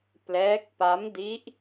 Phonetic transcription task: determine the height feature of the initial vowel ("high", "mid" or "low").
mid